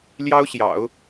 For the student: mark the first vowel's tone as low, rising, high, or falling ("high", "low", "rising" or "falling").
high